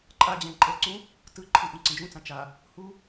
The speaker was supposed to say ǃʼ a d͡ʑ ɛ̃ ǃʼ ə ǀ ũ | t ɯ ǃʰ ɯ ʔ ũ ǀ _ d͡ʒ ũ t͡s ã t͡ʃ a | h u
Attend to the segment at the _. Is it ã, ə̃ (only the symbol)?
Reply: ə̃